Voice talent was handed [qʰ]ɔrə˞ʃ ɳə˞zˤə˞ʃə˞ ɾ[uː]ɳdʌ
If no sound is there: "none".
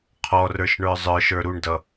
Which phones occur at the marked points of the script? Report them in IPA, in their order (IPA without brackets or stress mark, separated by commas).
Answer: qʰ, u